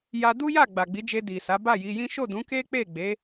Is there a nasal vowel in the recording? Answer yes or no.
yes